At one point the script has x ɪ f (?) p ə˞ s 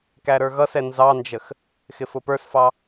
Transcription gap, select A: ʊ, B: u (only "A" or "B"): A